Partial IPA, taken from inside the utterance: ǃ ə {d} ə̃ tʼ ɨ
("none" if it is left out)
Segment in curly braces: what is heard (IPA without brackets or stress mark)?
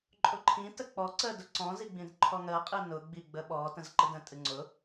d